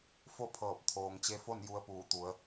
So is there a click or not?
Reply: no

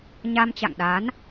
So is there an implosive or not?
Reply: yes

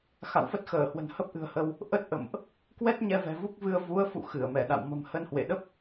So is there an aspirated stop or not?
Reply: no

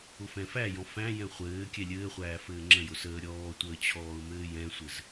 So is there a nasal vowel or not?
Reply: yes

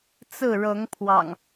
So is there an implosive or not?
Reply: no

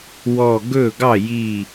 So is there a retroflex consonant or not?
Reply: no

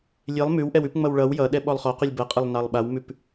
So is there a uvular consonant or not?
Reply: yes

